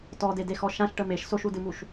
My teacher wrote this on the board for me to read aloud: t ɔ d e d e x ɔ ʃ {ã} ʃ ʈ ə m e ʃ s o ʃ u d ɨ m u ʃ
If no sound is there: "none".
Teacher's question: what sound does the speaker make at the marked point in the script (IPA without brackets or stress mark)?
ã